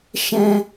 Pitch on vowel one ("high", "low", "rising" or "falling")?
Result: high